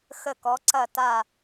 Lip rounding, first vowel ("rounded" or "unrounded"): unrounded